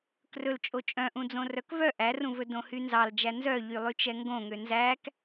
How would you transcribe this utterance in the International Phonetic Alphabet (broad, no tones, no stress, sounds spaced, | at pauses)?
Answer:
k r ɵ l t͡ʃʼ o t͡ʃʼ œ̃ ʔ ũ d͡z õ r œ k v œ ʔ æ r ũ v ɵ d õ h y n z ɑ l d͡ʒ æ n z œ ʎ y lˠ y t͡ʃ ɛ ŋ ɡ õ ŋ ø n z æ k